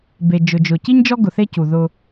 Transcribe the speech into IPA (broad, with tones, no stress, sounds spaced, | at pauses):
b e˨ d͡ʒ ʊ˨ d͡ʒ ʊ˨ c i˦ ɲ d͡ʒ ɔ˦ ɡ ʊ˨ θ e˦ c u˨ ð ʊ˦